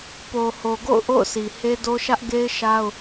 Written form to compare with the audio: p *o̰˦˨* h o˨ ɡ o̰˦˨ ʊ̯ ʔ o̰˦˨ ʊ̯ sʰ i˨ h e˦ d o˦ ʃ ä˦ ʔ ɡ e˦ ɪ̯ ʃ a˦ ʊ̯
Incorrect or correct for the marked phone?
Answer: incorrect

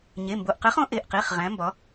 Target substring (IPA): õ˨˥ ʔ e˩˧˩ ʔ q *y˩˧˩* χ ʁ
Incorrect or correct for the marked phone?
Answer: incorrect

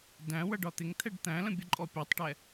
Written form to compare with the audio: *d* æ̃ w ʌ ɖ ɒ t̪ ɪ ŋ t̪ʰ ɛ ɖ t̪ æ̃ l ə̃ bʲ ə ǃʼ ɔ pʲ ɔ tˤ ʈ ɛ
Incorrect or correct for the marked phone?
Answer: correct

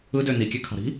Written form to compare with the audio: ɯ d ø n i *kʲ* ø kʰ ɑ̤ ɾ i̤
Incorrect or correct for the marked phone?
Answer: correct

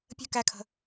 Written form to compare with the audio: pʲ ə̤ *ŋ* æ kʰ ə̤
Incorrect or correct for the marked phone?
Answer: incorrect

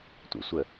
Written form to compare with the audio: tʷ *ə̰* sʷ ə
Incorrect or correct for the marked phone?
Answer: correct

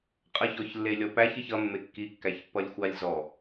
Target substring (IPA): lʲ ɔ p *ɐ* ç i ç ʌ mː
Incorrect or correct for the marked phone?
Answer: incorrect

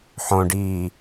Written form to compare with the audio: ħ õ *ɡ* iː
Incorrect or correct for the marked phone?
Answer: incorrect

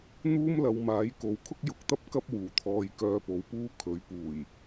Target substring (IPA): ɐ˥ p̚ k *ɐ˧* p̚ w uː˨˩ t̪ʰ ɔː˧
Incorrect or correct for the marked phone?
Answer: incorrect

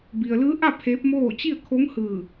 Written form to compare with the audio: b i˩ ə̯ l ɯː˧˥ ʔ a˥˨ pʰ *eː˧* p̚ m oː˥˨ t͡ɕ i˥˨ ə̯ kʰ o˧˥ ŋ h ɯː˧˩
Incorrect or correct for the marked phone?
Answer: incorrect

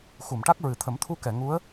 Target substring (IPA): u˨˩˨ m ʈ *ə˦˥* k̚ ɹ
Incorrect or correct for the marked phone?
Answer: incorrect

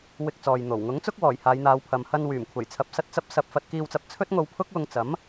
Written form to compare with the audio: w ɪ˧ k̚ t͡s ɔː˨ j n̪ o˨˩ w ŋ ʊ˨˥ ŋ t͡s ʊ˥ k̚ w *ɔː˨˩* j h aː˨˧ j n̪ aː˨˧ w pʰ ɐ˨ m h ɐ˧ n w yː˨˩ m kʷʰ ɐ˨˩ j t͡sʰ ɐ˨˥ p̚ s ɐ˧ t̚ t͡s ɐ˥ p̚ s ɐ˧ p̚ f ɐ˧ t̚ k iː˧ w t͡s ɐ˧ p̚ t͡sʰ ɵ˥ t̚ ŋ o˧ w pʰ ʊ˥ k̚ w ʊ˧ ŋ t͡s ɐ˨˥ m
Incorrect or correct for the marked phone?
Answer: correct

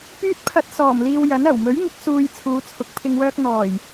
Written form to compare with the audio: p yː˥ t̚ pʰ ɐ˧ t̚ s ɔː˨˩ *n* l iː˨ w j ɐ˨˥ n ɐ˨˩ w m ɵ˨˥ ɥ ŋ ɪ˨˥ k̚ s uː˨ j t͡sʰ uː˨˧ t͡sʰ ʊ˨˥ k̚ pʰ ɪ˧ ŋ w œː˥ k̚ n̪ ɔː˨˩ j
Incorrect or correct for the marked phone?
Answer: incorrect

